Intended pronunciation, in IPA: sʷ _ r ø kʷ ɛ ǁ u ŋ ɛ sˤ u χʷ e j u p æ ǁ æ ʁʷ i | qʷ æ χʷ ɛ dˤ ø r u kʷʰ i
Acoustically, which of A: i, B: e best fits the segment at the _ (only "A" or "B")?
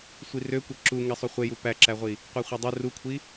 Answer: A